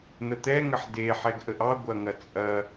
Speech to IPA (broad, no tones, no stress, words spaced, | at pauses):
n̪ət̪ɛ ŋəħde ħɛɡʔəʔɑ ɡʷɐŋɐt͡sʼɐ